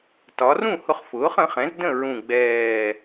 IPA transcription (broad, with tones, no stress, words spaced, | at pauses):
tɒ˩˧rũ˥˩ hʊ˧χ fʊː˩˥χə̃˩˥χɛ̃˩˥z də̃˥˩ ɹũ˨˩ɡ͡bɛː˨˩